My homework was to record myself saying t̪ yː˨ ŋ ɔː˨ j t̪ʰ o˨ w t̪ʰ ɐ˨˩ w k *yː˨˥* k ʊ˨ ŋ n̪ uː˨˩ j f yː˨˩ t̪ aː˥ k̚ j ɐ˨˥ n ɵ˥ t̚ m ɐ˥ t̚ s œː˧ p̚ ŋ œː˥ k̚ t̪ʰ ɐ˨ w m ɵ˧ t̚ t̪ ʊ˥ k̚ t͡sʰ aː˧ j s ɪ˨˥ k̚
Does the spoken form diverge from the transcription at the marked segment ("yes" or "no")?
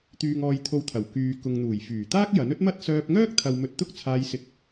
yes